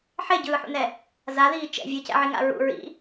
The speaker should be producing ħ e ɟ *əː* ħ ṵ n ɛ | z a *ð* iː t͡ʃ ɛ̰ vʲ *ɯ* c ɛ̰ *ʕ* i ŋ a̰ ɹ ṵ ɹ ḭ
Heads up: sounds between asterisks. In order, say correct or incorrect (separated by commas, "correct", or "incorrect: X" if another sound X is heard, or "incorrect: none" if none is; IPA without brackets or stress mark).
incorrect: ɯː, correct, correct, correct